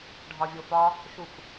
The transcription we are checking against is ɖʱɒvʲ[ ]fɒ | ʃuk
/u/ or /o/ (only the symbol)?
o